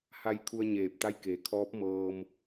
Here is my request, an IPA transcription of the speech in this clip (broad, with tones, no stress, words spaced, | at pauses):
ha˧j kʰu˧ə̯ɲeː˧˩p̚t̪a˧˥jkeː˩˧ kʰɔː˧˥p̚mɤː˧m